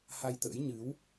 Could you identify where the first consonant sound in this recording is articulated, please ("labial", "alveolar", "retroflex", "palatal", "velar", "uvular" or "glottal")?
glottal